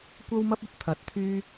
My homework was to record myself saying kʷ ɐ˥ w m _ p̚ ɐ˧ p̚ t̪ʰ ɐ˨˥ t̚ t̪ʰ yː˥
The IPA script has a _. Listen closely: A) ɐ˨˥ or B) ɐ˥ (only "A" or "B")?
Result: B